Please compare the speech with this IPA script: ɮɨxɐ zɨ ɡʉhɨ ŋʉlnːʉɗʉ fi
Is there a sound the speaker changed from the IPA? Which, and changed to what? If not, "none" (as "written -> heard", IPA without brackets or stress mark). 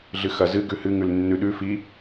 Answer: none